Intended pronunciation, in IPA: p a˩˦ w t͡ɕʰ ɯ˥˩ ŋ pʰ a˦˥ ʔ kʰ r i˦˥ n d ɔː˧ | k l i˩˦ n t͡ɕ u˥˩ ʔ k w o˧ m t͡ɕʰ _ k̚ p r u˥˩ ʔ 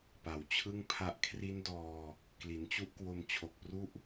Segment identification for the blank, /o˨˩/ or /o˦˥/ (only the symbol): o˨˩